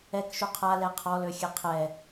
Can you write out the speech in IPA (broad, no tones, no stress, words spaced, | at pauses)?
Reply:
ɛkʃu qʰalɛ qʰɔløxʲɛ qʰɛ